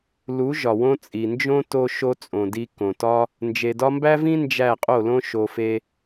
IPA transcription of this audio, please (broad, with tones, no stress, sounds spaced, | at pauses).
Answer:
l u˨˦ ʒ ɒ˨ w õ˧ t͡sʼ i˨ n d͡ʒ õ˦ t o˦ ʃ o˦ t͡sʼ õ˨ d i˧ k õ˨ t ɒ˦ | n d͡ʒ e˨ d ɒ˧ m b æ˦ v ĩ˦ n d͡ʒ æ˦˨ qʼ o˦˨ l õ˦ ʃ o˧ f e˦